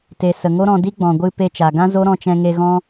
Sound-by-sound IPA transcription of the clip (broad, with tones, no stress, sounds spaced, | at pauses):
t e˨ s ə˨ ŋ o˦ ɾ ɔ̃˧ d i˦ ɡ͡b ɔ̃˨ ɡʷ ɨ˧ p e˧ t͡ʃ a˨ ɡ ã˦ z o˦ ɾ ɔ̃˧ t͡ʃ ɛ̃˧ ŋ e˧ ɣ ɔ̃˦